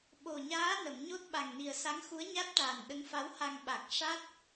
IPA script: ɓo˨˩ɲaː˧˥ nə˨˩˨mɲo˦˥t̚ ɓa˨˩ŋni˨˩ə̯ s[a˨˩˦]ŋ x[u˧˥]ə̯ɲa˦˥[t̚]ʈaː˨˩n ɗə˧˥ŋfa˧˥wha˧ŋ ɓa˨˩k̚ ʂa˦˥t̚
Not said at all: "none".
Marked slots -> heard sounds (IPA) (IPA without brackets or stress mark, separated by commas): a˧˥, u˧˥, t̚